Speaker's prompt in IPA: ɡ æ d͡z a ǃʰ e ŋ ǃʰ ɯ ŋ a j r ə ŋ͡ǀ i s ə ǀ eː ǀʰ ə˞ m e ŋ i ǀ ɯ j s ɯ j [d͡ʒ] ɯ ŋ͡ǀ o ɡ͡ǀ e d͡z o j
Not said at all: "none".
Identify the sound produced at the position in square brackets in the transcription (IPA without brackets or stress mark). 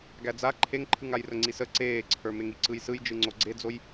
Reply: d͡ʒ